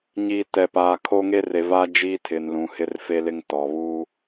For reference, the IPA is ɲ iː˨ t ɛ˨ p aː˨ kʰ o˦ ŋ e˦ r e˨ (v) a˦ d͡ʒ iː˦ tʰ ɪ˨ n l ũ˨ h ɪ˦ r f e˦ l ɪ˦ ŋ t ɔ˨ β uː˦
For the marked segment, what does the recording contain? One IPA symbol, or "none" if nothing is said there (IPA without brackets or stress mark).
v